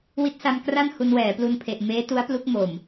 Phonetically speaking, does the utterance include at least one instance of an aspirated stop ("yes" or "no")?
yes